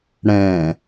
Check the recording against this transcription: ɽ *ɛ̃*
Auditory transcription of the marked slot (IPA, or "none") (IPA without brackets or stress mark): ɛ̃